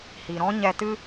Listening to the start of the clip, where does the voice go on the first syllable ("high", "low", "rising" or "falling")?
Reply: low